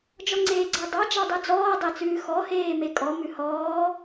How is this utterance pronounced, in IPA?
d͡ʒ ɔ ŋ͡ǀ eː ɡ͡ǀ a dˤ ɑ d͡ʒ ɑ dˤ ʉ d͡z ɔː dˤ e t͡s ʉː x ɔ h eː m e kʼ ɔ m ʉ h ɔː

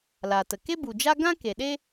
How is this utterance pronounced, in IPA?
l a˨ t ə˨ k e˦ b u˨ d͡ʒ a˦ ɡ ã˦ k e˨ ɗ e˦

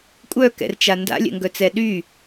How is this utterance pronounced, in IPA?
kʷʼ œ k ɛ̰ r t͡ʃ a n d a̰ lʲ ɛ̰ ŋ ɡ œ t͡s ɛ ɗ y

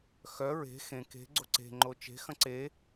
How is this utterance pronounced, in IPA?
x œ ɹ e̤ x ẽ k e̤ ɡ͡ǀ o ǀ e̤ ŋ͡ǃ o t͡ʃ e̤ x ɐ̃ ǀ e

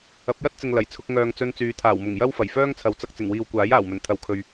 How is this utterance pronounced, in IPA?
ɐ˨˥ p̚ j ɐ˥ t̚ t͡s ɪ˨ ŋ l ɐ˨˩ j t͡sʰ ʊ˧ k̚ ŋ œː˨ ŋ t͡s ɵ˧ n t͡s yː˨˧ t̪ʰ aː˨˩ w m ʊ˨˩ ŋ j ɐ˥ w f ɐ˨˩ j f œː˥ ŋ t͡sʰ ɐ˨˥ w t͡s ɐ˨ k̚ t͡s ɪ˨˩ ŋ w iː˨ w kʷ aː˨˥ j aː˨˩ w m ɵ˨˩ n t̪ʰ ɐ˨ w kʰ ɵ˨ ɥ

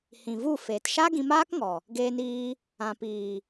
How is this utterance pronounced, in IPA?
h ĩ˨ v u˦˨ f eː˨ t ʃ a˦ ɡ ĩ˧ m aː˦ k ŋ ɔ˨ | ɡ eː˧ n iː˧ | ã˨ p iː˨

